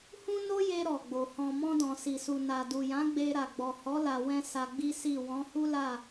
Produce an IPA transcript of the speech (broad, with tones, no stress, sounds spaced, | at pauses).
h ũ˦ n o˦ j e˧ ɾ ɔ˨ ɡ͡b o˨ h ɔ̃˨ m ɔ̃˧ d ɔ̃˨ s i˨ s u˨ n a˨ d u˨ j ã˨˦ ɡ͡b e˧ ɾ a˨ ɡ͡b ɔ˨ h ɔ˨˦ l a˧ w ɛ̃˦ s a˧ ɡ͡b i˦ s i˦˨ w ɔ̃˨˦ h u˦ l a˦˨